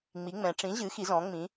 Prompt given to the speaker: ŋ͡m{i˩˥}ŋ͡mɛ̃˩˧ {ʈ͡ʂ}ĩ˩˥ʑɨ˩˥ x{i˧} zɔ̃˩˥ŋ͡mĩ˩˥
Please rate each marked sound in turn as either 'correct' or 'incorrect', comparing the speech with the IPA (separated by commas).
correct, correct, incorrect